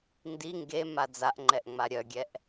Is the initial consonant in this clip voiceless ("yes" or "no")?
no